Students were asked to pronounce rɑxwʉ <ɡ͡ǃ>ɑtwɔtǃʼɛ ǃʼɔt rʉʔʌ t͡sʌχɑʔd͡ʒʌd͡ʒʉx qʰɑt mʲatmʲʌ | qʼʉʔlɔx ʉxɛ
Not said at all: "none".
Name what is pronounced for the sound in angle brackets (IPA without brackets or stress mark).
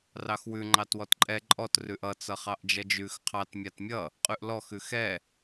ŋ͡ǃ